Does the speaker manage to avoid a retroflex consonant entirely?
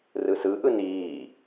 yes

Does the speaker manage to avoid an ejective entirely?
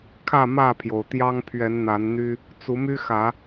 yes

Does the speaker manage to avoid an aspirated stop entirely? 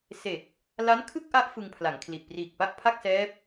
no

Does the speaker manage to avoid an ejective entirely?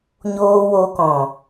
yes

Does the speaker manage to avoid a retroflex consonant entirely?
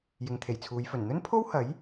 yes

